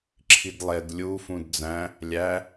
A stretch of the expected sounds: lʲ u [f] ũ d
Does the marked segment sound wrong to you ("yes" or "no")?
no